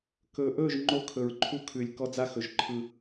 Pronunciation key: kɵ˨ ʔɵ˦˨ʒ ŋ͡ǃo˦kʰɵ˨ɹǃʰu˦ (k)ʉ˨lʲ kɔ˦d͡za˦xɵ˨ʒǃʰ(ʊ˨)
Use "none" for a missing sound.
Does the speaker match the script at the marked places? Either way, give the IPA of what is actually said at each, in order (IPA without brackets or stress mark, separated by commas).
kʰ, ɯ˨